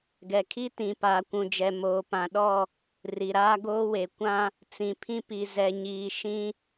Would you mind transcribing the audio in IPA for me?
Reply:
ɡ ɛ˨ kʰ i˦ t ĩ˨ p aː˨ kʷ ũ˨ d͡ʒ ɛ˨ m oː˨ p ã˨ ɗ ɔ˦˨ | r i˨ ɾ aː˦ ɡ oː˦ w e˨ kʷ ã˦ | t͡s ĩ˨ pʰ ĩ˦ p i˨ z ɛ˨ ɲ iː˨ ʃ ĩ˦

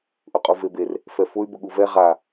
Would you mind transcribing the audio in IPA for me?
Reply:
ʔ ʊ qʼ u v e b e r | f ɛ f ʊ y̯ b ʊ ɠ u v ɛ ʁ a

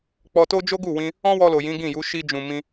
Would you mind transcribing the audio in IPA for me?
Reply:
k͡p ɔ˧ t o˦ d͡ʒ o˦ ɡ u˦˨ w ĩ˧ | ɔ̃˦ w ɔ˧ l o˨ j ĩ˨˦ ɡ ĩ˦˨ j u˨˦ ʃ i˧ d͡ʒ ũ˨ m ĩ˧

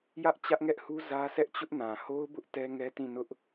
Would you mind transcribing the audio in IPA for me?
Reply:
j ä˦ ʔ t͡ɕ ä˦ ʔ ŋ ɛ˦ ʔ h u˦ z ä˦ sʰ ɛ˦ ʔ t͡ɕ ʊ˦ ʔ n ã˨ h o˦ ʊ̯ b ʊ˦ ʔ t ɛ˦ ŋ ɛ˦ t ĩ˦˨ n ʊ˦ ʔ

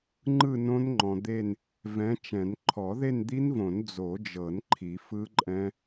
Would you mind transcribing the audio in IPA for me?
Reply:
ŋ͡ǃ ɯ˥˧ n õ˦˥ n ŋ͡ǃ ɔ̃˨ d̪ e˥˧ n | v ɛ̃˨˦ t͡ʃ ɛ̃˨˩˦ n ǃʰ ɔ˨˩˦ ð e˥˧ n d̪ i˦˥ n v õ˨˩˦ n d͡z o˨˩˦ d͡ʒ ɤ˨˩˦ n ǃʰ i˨˩˦ f ɯ˦˥ ǃʼ ɛ̃˦˥

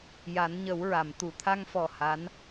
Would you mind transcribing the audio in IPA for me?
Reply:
j a˨˩˦ n ɲ ə˨˩˦ w ɹ a˨˩˨ m t̪ u˨˩˨ t̪ʰ a˧ ŋ f ɔ˨˩ h a˧˥ n

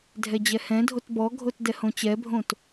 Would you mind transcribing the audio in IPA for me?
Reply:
dʱ ɛ d͡ʑ ɛ h ɛ̃ dʱ o t b ɔ ɡʱ o t d ɛ h õ t͡ɕ ɛ bʱ õ t

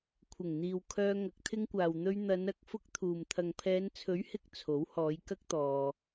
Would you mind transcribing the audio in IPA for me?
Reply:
kʷʰ ɪ˨˩ ŋ n̪ iː˨ w kʰ œː˧ ŋ ɐ˨˥ k̚ t̪ʰ ɪ˧ ŋ kʷ aː˨ w n̪ ɵ˧ ɥ n̪ ɐ˨˧ n ɐ˨˥ k̚ f ʊ˧ k̚ t̪ʰ uː˨ m t̪ʰ ɐ˨ ŋ pʰ ɛː˨˧ n t͡sʰ ɵ˨˥ ɥ h ɪ˨˥ k̚ t͡sʰ o˨˥ w h ɔː˨˧ j k ɐ˥ k̚ t̪ ɔː˧

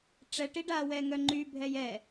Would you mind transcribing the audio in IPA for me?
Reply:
ʈ͡ʂ ɛ ʈ i ɖ a w ɛ ŋ œ ŋ͡ǃ y bʱ ɛ j ɛ

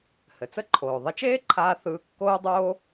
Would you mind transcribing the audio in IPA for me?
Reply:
h ɘ˩ t͡s ə˥ ǃʰ oː˩ ðˤ ɘ˧ t͡ʃ eː˥ ǃʰ aː˧ θ ɯː˧ kː oː˥ dˤ oː˥

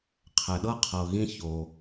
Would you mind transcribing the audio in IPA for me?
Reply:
qʰ ɛ˨ ɗ ɤ˥ qʰ ɤ˨ ɣ ĩ˦ ç o˨

